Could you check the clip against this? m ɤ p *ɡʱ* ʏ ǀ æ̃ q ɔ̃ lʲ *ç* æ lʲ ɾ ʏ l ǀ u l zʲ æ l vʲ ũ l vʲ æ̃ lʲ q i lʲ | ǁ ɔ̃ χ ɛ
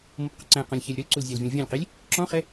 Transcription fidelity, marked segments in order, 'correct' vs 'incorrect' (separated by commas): incorrect, correct